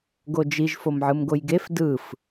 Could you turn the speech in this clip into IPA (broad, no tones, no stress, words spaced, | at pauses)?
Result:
ɡod͡ʒiʒ fomʕɯmɡojɡef dɯf